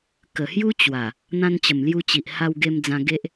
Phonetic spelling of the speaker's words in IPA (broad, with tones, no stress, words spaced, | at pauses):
kə˨˩hju˦ t͡ɕwa˨˩ | n̪ã˧nt͡ɕə˨˩mlju˧ t͡ɕi˨ʔha˧w ɡe˧md͡zã˧ ɡe˦ʔ